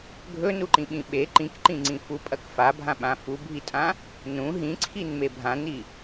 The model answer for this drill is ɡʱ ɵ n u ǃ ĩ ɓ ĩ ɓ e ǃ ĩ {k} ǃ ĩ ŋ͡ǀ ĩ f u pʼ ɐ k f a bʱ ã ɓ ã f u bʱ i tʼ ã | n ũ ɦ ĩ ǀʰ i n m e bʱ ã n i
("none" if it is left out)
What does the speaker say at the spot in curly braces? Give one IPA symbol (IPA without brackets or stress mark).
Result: k